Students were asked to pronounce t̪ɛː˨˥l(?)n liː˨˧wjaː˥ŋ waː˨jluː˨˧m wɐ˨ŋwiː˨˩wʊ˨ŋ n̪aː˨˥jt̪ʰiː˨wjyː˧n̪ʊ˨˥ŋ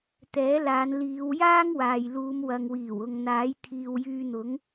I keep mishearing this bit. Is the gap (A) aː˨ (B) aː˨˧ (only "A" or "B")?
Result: B